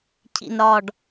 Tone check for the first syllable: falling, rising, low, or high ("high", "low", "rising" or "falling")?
low